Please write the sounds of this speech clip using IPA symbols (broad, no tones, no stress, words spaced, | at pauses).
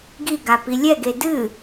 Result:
ɡiɡa pilʲɛɡe dɨ